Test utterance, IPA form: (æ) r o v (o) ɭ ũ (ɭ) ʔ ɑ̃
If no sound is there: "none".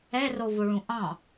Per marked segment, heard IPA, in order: ɛ, o, none

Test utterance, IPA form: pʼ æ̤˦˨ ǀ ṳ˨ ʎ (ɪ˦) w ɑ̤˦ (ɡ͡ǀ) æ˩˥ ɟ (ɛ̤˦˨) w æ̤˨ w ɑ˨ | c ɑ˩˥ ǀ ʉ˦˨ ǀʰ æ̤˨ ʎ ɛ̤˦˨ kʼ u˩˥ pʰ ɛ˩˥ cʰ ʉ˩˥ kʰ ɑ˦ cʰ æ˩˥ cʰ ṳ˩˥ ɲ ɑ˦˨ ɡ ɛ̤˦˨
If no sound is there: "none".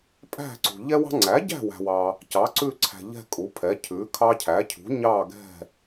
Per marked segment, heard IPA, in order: ɛ˦, ŋ͡ǀ, æ̤˦˨

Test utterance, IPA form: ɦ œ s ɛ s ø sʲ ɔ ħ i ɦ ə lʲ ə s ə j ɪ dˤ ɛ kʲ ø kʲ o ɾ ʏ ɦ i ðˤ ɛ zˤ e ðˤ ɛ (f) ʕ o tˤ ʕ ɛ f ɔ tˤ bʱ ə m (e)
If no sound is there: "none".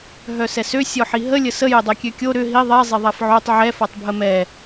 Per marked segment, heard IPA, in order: f, ɛ

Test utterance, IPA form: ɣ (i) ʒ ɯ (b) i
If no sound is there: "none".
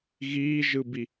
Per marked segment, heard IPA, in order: iː, b

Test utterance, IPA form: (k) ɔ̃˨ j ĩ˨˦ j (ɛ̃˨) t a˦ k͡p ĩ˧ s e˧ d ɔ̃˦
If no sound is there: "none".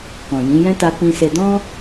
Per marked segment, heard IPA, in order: k, ɛ̃˦

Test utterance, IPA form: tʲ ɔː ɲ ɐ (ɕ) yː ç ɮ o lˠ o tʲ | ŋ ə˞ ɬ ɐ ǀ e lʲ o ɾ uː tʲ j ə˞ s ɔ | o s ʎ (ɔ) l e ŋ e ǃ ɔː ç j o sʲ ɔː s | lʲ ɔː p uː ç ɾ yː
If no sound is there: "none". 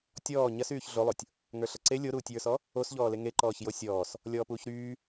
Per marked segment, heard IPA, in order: s, ɔː

